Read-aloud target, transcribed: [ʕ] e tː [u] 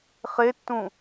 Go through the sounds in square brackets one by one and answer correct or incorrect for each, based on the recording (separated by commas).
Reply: incorrect, incorrect